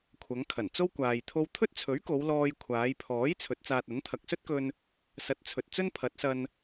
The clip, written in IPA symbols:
kʷʰɐ˨˧ŋkʰɐ˨˩n t͡so˥wkʷaː˨j t̪ʰo˧wt̪ʰɵ˥t̚t͡sʰɵ˨˥ɥko˨˧w lɔː˧jkʷʰaː˨˧jpʰɔː˨˥j t͡sʰɵ˨˥t̚t͡saː˧t̚ɐ˨˥n t̪ʰɐ˨k̚sɵ˥t̚kɵ˧n | sɐ˨˥t̚t͡sʰɵ˨t̚ t͡sɵ˥npʰɐ˨˥t̚sɐ˧n

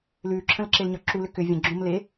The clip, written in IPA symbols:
lʉːǁʰə̃lǁelɲɒ ǁulʏ kʏ vʲə̃ ɡ͡ǁõmle

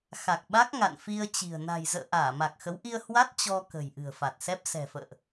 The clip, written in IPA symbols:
xa˨˩k̚ɓa˦˥k̚ ŋa̰˧˨nfi˧ə̯t͡ɕi̤˨˩ə̯ na̤˨˩j zə̰ː˧˨ ʔaː˧˩ma˨˩k̚xə˨˦wʔi˧ə̯ hwa˦˥t̚ t͡ɕɔ˧ kə̤˨˩jʔɨ̤˨˩ə̯fa˨˩t̚sɛ˦˥p̚ sɛ̤˨˩fə̰ː˧˨ʔ

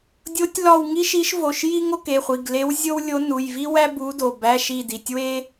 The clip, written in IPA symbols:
dʲo˧˥tʲlɒ˦˨wŋi˥ ʃi˧˥ʃvo˩˧˩ʃji˥ ŋo˥ke˩˧˩χʷi˩˧˩ɡle˧˥w zʲo˥wlʲo˧˥ nu˩˧˩jvi˥wæ˥ bu˧˥do˩˧˩bæ˧˥˧ ʃi˦˨ di˩˧˩tʲwe˥

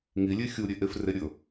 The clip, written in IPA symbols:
ŋilʲe xʲuɾʲe ʔefre ɾʲɵ

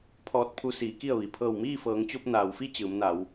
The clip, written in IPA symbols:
pʰɔː˧t̚pʰu˧ siː˩˧ ki˥˨ə̯ʋi˩ pʰɤː˧˩wmiː˥˨fɤː˩˧ŋt͡ɕo˧p̚ naː˩wfi˥˨ t͡ɕɯː˩˧mna˩˧w

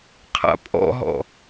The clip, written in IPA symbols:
qʰa̰pʼɔ̰ɦɔ̰

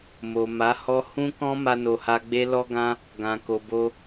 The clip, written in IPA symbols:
mo˨ma˨˦hɔ˦ hũ˦kɔ̃˦ ma˦no˧ha˦ ɡ͡be˦lɔ˦ɡã˦ | ɡã˨ko˨bo˧

